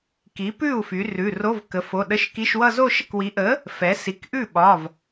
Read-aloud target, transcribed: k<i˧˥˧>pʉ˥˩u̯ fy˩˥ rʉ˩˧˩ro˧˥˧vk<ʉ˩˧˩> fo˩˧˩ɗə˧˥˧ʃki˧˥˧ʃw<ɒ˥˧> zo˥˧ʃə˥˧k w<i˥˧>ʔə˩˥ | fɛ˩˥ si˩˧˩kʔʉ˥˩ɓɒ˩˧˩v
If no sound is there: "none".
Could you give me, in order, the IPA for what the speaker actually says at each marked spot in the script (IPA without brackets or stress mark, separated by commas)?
i˩˥, ə˩˧˩, ʌ˥˧, i˩˥